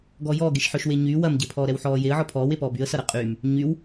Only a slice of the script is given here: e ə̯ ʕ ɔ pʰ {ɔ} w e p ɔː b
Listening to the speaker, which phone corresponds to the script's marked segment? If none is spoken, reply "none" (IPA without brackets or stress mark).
ɔː